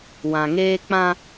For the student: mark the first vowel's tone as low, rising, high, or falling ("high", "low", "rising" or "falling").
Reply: low